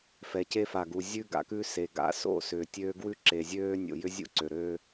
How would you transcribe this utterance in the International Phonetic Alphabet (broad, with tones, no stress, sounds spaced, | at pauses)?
f ɛ˨ c e˦ f a˨ ɡ u˨ zʲ ʉ˦ ɡ a̰˨ k ʉ˦ s e˨ ɡ a̰˨ s o̰˦˨ s ʏː˨ tʲ øː˦ ɡ w ʉ˦ ǁ e˨ zʲ øː˦ nʲ o̰˨ j ʏ˦ zʲ ṵ˦ ǀ ø˨ ɾ øː˦